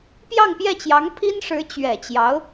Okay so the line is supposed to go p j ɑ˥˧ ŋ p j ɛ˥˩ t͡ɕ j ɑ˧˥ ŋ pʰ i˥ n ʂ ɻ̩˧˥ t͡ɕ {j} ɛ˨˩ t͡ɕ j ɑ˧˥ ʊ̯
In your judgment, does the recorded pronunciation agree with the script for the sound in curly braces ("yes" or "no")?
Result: no